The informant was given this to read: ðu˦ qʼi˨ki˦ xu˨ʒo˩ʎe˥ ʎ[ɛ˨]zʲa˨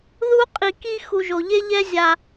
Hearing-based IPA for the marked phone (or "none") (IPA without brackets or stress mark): ɛ˦